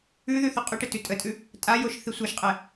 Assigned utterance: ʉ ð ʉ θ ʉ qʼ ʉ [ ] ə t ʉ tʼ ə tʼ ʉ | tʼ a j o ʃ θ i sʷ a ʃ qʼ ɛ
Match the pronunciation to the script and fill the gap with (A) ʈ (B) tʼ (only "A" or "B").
A